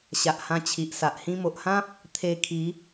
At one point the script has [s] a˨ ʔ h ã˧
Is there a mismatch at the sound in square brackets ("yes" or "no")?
yes